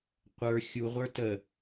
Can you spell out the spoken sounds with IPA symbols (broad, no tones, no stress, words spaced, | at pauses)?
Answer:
qʷə˞ xʲuʁʷə˞ tə